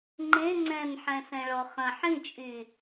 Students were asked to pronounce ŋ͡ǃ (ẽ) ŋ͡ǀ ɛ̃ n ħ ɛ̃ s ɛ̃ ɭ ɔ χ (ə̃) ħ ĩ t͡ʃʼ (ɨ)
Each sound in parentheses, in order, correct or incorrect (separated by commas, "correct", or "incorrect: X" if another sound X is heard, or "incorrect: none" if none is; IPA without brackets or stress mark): correct, correct, incorrect: y